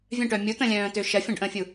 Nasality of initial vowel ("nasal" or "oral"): nasal